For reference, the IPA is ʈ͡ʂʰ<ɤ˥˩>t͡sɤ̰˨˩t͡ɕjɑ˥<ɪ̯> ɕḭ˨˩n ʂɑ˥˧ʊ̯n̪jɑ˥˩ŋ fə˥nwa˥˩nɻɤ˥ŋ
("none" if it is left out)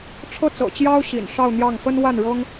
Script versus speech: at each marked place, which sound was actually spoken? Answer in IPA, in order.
ɤ˥˩, ʊ̯

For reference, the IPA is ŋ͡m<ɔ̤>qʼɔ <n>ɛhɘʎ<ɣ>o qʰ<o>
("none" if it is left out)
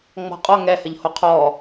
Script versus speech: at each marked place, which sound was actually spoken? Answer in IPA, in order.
ɔ̤, ŋ, h, ɔ

